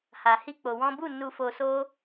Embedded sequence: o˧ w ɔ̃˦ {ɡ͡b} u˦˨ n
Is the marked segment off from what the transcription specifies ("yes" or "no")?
yes